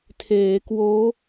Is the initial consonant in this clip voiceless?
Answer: yes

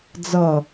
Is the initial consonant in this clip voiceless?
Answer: no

